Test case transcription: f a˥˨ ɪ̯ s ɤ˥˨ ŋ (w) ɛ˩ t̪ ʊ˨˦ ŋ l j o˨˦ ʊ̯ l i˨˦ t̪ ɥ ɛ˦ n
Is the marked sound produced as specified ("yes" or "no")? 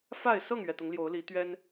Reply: no